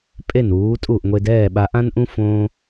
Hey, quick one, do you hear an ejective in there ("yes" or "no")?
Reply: yes